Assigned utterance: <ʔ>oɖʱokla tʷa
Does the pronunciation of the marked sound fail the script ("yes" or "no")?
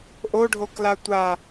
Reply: no